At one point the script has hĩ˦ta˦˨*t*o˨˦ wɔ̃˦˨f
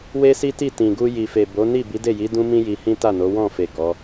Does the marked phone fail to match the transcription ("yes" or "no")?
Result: yes